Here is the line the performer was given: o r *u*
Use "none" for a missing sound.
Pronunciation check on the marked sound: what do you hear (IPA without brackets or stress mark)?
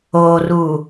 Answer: u